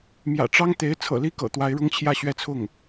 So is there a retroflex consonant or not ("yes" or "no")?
yes